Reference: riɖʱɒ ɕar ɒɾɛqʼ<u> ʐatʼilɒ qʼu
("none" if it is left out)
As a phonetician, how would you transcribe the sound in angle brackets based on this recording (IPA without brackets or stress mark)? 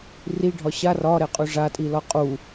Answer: u